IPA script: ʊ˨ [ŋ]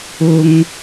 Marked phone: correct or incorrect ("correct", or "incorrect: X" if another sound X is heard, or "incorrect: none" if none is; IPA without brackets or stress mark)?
correct